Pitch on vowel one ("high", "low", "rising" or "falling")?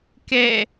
falling